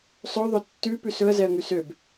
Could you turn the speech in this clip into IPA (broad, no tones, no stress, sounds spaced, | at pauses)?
sˤ ɵ ðˤ ø tː ʉ p ʉ s ɵ ə̯ z ɛ ə̯ ŋ ʉ s ø b